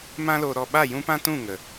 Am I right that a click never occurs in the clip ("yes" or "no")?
yes